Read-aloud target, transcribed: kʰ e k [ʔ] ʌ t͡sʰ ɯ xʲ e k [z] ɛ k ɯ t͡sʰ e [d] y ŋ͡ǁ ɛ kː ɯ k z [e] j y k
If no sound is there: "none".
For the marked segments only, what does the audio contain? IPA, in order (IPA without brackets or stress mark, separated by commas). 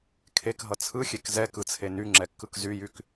ɦ, z, n, y